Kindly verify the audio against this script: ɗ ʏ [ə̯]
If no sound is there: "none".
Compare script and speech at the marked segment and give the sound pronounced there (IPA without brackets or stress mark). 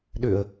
ə̯